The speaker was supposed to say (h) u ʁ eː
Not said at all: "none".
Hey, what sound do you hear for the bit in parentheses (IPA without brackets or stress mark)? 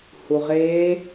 h